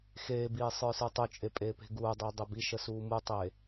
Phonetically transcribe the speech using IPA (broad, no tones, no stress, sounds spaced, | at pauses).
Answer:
x eː b iː sˤ ə˞ s ə˞ tˤ u t͡ʃʼ e pʼ eː p e̤ ɡ uː dˤ iː dˤ e b i ʃ ə s uː m u tˤ e